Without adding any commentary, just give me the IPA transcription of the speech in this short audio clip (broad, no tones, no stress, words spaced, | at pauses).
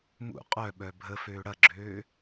mṵ qʼœɓœ bʱəføː ɽɐɡ͡ǁøː